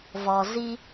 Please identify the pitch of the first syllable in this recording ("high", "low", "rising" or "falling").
low